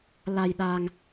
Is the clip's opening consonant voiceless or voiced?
voiced